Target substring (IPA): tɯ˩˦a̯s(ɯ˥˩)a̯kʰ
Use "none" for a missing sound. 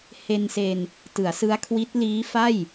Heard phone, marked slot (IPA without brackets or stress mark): ɯ˦˥